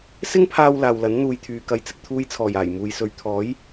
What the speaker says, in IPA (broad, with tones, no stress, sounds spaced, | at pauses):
s ɪ˥ ŋ pʰ aː˧ w l aː˨ w l ɐ˨˥ n n̪ uː˨ j t̪ʰ yː˨ k ɐ˨˧ j t͡s ɪ˨ k̚ t̪ʰ uː˧ j t͡sʰ ɔː˨˩ j aː˨˩ j m uː˨ j s ɵ˨ ɥ t̪ʰ ɔː˨˥ j